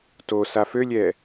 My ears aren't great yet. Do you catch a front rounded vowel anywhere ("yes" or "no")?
yes